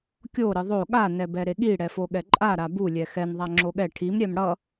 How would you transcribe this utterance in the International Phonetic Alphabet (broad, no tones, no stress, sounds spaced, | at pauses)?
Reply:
kʲ o ɾ ɯ ðˤ o ɠ a n ɛ b ɛ ɾ e ɠ i ɽ ɛ f o ɠ ɛ ǃʼ a ɾ a b u lʲ ɛ x ɛ n ðˤ a ŋ͡ǁ o ɠ ɛ ʈʰ i m ɾʲ ɛ m ɽ ʌ